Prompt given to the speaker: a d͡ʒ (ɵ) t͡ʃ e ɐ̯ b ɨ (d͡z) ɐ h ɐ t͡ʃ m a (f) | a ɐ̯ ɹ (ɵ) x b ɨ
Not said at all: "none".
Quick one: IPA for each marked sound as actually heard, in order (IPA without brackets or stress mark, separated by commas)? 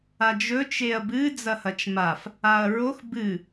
ɵ, d͡z, f, o